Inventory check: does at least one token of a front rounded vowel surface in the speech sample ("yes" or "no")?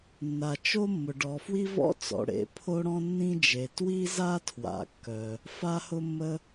yes